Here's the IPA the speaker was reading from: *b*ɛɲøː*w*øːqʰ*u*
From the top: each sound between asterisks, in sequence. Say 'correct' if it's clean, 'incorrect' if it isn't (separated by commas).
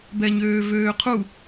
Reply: correct, incorrect, correct